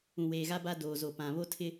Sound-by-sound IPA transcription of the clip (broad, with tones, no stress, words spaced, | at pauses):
ũ˨weː˨ɣa˦ ba˦doː˨ zo˨pã˨ βo˦tʰɪ˦